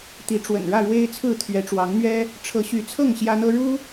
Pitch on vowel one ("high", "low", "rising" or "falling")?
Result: rising